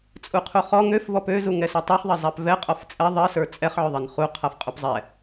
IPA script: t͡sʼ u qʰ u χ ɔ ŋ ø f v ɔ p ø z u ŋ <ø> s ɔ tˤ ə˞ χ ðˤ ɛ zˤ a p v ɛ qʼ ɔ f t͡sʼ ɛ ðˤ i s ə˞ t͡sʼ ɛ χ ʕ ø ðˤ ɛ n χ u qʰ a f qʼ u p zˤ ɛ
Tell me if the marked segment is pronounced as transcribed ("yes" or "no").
no